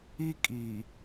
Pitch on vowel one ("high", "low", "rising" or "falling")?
high